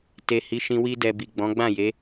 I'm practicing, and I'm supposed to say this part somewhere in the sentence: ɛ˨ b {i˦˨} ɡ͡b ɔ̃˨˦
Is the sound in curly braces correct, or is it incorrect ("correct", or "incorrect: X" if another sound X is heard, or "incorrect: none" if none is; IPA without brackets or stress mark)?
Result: incorrect: i˨